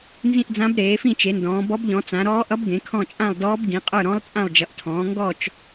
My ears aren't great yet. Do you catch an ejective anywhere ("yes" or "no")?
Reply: yes